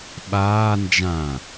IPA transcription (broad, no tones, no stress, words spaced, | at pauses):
ɓaː nd͡ʒã